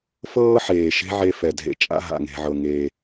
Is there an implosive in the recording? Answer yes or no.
no